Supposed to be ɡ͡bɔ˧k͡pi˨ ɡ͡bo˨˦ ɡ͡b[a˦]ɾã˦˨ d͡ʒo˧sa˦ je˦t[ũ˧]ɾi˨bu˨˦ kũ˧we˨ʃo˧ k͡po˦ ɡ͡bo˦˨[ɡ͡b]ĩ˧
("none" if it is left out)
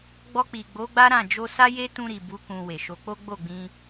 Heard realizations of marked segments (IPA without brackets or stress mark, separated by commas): a˦, ũ˧, ɡ͡b